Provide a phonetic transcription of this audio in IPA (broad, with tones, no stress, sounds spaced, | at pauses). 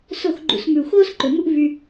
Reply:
s o˦˨ x ɡ͡ǃ ṵ˧ s m ʉ˨ u̯ x oː˦ s ǃ ɵ˨ m u˦ ʔ v y˧